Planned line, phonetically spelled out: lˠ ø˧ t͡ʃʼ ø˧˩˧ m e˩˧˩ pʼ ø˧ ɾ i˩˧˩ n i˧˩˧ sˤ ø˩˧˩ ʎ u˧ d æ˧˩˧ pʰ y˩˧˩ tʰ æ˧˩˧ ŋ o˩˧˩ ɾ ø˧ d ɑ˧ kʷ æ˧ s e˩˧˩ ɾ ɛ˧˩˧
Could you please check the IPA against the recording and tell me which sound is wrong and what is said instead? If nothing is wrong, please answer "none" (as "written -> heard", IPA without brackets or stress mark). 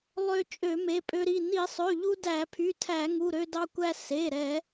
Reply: o˩˧˩ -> u˩˧˩